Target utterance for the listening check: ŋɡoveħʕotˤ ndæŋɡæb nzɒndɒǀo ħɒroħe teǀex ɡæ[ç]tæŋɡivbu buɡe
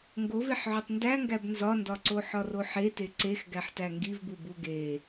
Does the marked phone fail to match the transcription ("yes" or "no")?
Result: yes